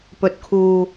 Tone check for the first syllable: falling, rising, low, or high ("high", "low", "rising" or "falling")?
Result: low